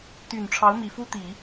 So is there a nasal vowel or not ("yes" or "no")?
no